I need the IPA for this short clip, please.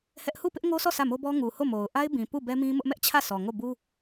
hɛ˦ʔ hu˦˨pɪ˦ʔŋo˦sʰɔ˦˨ sʰä˦˨mo˦bɔ˦ ŋu˨ ho˦˨mo˨ʊ̯ ʔa˦ɪ̯bĩ˨ pu˦˨ bɛ˦mĩ˦mʊ˦ʔ mɛ˦ʔt͡ɕʰä˦˨sʰɔ˨ ŋo˦˨bu˦

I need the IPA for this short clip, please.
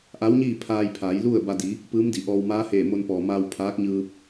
ʔa˧˥wɲiː˥˨pʰaː˧jpʰaː˩˧j lu˥˨ə̯ba˧ di˩˧ | pɯː˧˥mdi˩˧ʔɔː˧w maː˧˥heː˧˩ mo˧npɔː˩maː˧w pʰaː˧˥k̚ɲɯː˧p̚

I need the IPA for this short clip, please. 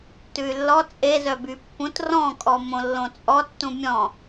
tʉy̯lːɔ t͡sʼezœby pːũt rɔ̃kʼɔ mõlːõt͡sʼɔ tːũmʲɔ̃

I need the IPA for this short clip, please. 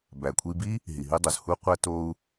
bæ˩kʷʰi˧bi˥ | ɦi˩ɦi˧dˤo˩z hu˧ qʷæ˧ to˧u̯

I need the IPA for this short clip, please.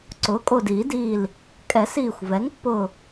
ǀʊː˩˥kʼo˧˩diː˨˩˦diː˧˩l | kʼɛ˨˩˦s iː˧˩xʷvɛ˩˥ŋpːʊ˧˩

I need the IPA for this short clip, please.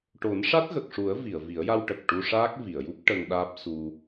ʈo˨˩˦nʂa˦˥t̚ɣə˨˩k̚ʂu˨˩˦ə̯ vi˨˩˨ə̯vi˨˩˦ə̯ja˧w ʈə˨˩k̚ ʈu˧ʂaː˦˥k̚vi˨˩˨ə̯ju˦˥p̚ ʈə˧ŋɗaː˦˥p̚su˧

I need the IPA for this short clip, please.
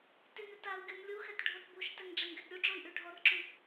tynʏtau̯ɡʲun lʲuxɛt ɖʱotbuʃtɛŋ ɖ͡ʐɛŋɡɛtɾʲuɖ͡ʐoi̯ ʔyɖʱɔrǁy

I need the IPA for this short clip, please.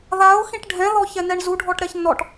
ðaʊ̯ xĩʈɖʱɛ̃ ðɔçɛnɛɳzu ɖʱɔʈɾɛçnɔʈ

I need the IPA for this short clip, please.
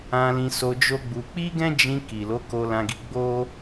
ã˧lĩ˧so˧ d͡ʒo˦ɡ͡bu˧ k͡pi˦ɡɛ̃˦ d͡ʒĩ˧ ki˨lo˨˦ ko˧lã˧ɡi˧ɡ͡bo˦

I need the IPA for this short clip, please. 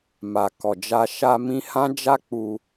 ma˨kɔ˨d͡ʒa˧ ʃa˧mĩ˧ hã˦d͡ʒa˦ k͡pu˧

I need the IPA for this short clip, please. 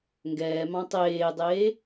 ŋɡɛːmɑ̃ tˤeːdˤeː

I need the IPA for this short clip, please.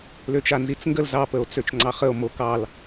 løt͡ʃanzit͡sŋɡəl zɑ pəo̯t͡søt͡ʃŋ͡ǀɑχəo̯ mokɑl

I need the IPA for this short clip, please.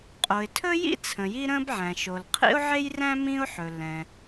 qʼo˩ɪ̯tʰɵ˥jḭ˥ t͡sʰə̃˩ji˥ ɾə̃˥b ʕæ̃˩ʃo˩l qʰḭ˥ʊ̯ʕe˥jræ̃˥ mĩ˥ʊ̯ħɵ˩ lɛ̃˩

